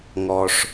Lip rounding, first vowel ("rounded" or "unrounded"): rounded